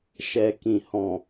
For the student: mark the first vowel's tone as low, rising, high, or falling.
low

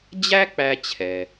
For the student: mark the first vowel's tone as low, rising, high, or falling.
high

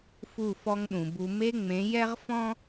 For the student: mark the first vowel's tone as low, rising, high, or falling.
falling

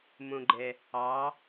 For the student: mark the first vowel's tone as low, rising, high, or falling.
low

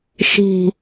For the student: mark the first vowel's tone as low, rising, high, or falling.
falling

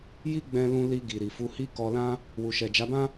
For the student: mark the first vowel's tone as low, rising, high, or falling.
high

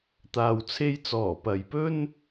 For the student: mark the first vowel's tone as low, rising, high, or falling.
low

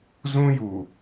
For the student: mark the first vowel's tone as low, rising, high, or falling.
high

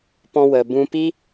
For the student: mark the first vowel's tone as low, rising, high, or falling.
high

